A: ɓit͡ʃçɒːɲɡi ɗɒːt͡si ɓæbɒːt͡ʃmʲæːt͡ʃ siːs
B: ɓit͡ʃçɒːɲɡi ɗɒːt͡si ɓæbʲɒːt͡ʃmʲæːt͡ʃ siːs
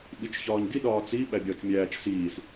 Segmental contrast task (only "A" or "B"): B